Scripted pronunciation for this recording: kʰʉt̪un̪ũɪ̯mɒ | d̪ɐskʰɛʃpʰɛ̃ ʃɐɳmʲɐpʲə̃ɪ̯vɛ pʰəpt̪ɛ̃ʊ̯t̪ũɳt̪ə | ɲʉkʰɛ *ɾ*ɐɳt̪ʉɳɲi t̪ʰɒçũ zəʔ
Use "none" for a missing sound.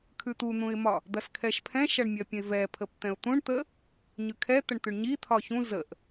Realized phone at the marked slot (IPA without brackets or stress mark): t̪